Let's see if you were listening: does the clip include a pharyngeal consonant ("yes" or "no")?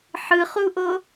yes